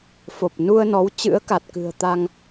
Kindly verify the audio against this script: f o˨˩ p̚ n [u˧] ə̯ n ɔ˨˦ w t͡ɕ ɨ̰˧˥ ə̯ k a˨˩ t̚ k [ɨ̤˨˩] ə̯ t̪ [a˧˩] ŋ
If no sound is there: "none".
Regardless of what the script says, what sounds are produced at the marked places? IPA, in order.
u˧, ɨ̤˨˩, a˧

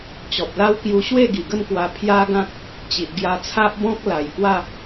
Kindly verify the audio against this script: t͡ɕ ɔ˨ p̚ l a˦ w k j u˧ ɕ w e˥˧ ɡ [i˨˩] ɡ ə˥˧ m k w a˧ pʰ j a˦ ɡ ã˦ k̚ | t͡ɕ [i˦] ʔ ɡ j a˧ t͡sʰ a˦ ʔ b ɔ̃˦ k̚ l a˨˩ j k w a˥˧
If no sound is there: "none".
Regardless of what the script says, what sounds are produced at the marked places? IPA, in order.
i˨˩, i˨

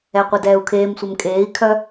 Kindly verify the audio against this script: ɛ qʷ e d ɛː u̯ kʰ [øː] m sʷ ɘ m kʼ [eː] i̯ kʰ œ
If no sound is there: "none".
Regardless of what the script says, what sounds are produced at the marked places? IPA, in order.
eː, eː

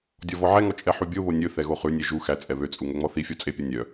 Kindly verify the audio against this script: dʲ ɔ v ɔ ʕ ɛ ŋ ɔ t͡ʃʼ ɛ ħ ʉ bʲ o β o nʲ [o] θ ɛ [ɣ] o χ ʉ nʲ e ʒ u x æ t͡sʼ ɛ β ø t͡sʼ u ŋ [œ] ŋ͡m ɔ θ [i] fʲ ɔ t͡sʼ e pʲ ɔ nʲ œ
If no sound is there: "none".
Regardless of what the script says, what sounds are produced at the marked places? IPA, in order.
ɵ, ɣ, ɵ, i

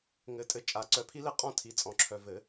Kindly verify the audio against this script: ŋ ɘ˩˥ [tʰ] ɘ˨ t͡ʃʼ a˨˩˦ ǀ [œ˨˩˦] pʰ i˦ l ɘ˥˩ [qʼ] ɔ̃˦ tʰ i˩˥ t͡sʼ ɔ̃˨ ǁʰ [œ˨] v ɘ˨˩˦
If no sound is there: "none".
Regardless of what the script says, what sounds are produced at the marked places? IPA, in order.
tʼ, œ˨˩˦, qʼ, œ˨

